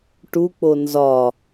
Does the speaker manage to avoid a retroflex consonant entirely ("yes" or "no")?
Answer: no